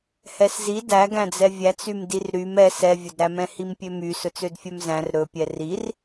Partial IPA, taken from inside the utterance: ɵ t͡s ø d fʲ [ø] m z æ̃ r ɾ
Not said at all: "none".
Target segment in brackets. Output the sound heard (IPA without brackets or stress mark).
œ